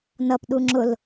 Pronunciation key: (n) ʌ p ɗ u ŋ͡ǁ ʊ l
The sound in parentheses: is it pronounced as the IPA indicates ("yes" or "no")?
yes